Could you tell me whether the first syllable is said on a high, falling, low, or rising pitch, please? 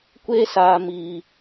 high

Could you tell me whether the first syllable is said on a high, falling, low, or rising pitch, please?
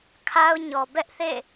high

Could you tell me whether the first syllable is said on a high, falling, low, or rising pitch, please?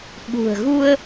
low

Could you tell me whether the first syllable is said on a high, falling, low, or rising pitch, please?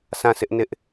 falling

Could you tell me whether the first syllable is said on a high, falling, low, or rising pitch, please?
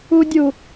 high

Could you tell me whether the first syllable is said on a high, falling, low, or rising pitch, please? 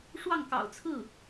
falling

